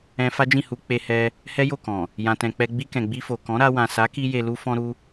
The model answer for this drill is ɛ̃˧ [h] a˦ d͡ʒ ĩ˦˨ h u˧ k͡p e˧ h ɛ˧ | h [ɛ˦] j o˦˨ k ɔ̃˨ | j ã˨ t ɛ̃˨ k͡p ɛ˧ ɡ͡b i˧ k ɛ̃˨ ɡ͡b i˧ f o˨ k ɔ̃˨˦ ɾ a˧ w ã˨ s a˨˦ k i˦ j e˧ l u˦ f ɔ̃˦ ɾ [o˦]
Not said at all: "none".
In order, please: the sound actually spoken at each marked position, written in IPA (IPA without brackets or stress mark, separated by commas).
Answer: f, ɛ˦, u˦